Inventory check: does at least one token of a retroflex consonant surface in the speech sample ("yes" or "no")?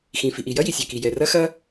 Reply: no